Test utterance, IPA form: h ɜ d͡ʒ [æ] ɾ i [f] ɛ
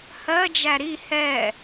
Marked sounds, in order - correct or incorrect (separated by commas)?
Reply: correct, incorrect